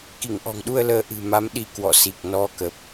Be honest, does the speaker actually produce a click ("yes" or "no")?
no